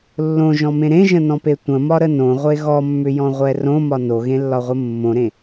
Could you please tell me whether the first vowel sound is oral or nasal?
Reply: nasal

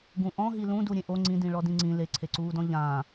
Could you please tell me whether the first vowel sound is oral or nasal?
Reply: nasal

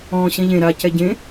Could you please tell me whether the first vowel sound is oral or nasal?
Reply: nasal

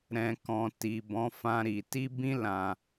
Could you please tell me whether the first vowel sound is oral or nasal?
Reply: nasal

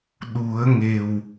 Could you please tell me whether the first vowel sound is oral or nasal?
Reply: oral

